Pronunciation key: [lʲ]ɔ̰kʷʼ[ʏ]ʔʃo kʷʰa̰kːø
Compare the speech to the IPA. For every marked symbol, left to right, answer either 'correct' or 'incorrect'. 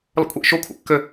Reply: incorrect: l, incorrect: ɛ

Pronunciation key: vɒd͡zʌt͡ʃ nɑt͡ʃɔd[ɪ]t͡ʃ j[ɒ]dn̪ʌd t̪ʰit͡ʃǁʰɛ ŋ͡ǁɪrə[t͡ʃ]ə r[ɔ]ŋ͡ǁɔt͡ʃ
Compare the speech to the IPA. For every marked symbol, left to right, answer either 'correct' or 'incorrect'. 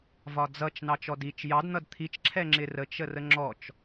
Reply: incorrect: i, incorrect: ɑ, correct, incorrect: ə

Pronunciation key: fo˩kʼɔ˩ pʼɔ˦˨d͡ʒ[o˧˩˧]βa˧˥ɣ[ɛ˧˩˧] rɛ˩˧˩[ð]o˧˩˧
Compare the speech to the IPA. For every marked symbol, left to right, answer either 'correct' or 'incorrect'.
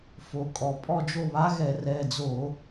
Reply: incorrect: o˦˨, correct, incorrect: d͡z

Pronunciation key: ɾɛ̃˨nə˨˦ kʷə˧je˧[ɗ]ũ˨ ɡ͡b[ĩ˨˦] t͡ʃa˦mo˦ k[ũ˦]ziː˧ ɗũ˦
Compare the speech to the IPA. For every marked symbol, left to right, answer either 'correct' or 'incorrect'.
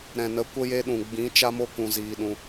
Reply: correct, correct, incorrect: ũ˧

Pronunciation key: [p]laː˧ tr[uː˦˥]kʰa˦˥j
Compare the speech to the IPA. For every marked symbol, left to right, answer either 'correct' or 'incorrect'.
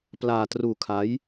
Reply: correct, incorrect: uː˧

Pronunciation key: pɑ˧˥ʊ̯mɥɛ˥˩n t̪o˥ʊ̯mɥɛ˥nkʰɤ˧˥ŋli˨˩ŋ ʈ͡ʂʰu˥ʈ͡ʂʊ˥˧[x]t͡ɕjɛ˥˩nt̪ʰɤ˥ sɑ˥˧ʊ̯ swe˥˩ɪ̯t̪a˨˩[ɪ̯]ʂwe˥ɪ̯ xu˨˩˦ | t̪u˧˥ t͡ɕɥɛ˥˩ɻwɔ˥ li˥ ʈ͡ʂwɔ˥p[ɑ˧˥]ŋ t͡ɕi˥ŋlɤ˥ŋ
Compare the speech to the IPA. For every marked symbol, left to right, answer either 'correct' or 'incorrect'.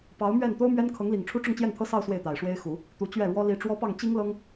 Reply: incorrect: ŋ, correct, incorrect: ɑ˥˩

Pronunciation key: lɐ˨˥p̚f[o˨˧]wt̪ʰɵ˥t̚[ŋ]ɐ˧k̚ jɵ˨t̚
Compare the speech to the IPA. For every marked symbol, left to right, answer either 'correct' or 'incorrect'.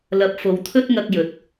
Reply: correct, correct

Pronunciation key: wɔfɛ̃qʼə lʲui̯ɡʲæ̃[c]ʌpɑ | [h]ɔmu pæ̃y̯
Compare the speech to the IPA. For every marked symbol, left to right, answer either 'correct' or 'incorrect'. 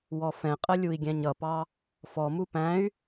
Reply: incorrect: ɲ, incorrect: f

